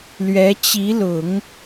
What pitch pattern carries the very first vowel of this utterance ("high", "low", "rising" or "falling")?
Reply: rising